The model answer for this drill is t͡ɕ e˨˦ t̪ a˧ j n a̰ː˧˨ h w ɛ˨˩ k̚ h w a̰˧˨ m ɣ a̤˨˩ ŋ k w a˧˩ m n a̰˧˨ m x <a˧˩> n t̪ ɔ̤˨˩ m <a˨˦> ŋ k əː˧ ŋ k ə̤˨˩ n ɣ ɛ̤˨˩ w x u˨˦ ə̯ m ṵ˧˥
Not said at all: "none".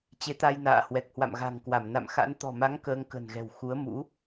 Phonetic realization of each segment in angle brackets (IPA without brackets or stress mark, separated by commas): a̰˧˥, a˨˦